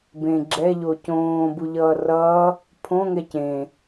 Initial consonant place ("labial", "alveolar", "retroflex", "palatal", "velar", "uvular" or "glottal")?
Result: labial